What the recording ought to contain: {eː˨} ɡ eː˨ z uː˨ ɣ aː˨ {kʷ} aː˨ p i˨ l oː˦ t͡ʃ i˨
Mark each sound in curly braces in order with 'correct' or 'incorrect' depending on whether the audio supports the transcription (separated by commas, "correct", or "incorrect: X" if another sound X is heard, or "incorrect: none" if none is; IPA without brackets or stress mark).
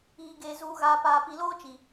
incorrect: iː˨, incorrect: p